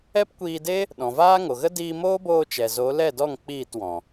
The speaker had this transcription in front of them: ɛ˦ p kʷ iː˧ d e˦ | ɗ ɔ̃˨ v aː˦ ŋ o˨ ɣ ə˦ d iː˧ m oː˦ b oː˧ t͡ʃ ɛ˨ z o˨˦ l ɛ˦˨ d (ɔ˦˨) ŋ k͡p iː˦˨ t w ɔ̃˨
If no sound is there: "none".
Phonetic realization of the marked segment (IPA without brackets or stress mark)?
ɔ˦˨